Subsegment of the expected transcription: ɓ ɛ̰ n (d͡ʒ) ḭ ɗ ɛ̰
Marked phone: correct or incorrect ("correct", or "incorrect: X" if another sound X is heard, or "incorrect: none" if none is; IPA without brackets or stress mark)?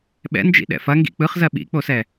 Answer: correct